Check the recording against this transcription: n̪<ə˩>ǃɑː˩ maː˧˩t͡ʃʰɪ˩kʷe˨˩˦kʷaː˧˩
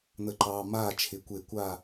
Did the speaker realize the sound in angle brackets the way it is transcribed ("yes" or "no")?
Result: yes